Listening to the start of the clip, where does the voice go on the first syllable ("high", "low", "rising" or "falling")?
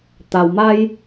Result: low